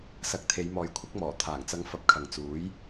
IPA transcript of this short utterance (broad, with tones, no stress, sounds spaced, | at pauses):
s ɐ˨˥ k̚ t̪ʰ e˨˧ j m ɔː˨ j kʷʰ ɪ˥ k̚ m ɔː˨˩ t̪ʰ aː˨˩ ŋ t͡s ɐ˨˧ ŋ f ɐ˨ p̚ kʰ ɐ˨ ŋ t͡s uː˨˥ j